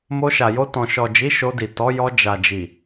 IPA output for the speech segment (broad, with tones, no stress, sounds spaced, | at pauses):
m o˧ ʃ a˨ j o˧ t ɔ̃˨ ʃ ɔ˨ d͡ʒ i˨˦ ʃ o˧ d i˨ t ɔ˨˦ j ɔ˧ d͡ʒ a˨ d͡ʒ i˨